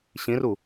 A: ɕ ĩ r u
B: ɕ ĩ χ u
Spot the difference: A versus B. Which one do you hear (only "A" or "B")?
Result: A